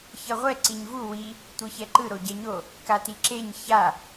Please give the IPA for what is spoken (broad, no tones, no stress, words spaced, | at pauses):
çʌʁʷɛ ǀiɲvu wi | tʷɯçɛǃɯ ɾoɟɛɲo | katiǁeɲ ça